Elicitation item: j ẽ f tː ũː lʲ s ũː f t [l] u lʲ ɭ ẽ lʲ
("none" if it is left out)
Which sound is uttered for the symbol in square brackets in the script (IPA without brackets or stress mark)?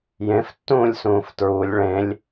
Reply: ɹ